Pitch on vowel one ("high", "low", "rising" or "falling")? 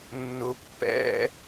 low